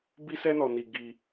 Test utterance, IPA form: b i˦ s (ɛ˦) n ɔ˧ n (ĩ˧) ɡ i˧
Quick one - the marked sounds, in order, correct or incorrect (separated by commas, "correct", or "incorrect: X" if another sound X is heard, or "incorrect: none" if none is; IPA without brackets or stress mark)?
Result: correct, incorrect: i˧